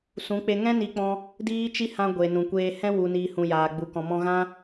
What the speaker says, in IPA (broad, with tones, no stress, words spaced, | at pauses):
sũ˨˦k͡pe˧ŋɛ̃˦ ni˦k͡pɔ̃˦ | diː˦t͡ʃi˦hã˧ ɡʷe˨nũ˨ kʷeː˧hɛ̃˦ wu˨niː˨ hũ˨jaː˨ɡ͡bu˨ kɔ̃˨mɔ̃˧ɣã˦